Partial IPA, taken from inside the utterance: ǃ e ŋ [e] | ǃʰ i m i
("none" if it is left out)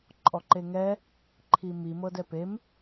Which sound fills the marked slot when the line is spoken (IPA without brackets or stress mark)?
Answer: ɛ